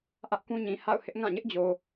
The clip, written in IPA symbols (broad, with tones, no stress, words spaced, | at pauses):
ʔä˦ʔkũ˦ɲĩ˨ ha̰˦˨ʊ̯ hɪ˦ʔ ŋã˦˨ɲɪ˦ʔd͡ʑo˨